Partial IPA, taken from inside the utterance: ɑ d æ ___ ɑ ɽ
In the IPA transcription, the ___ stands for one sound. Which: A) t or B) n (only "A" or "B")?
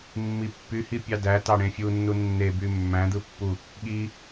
A